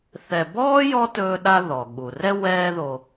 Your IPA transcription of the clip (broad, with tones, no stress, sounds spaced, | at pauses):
θ ɛ˨ b ɔː˥ j ɔ˥ t ɵː˦ ɗ a˦ ð ɔ˩ ɠ u˩ r ɛ˦ w ɛː˦ ð o˨